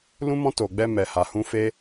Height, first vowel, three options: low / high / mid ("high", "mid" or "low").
high